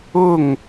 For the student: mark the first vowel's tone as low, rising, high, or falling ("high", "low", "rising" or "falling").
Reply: falling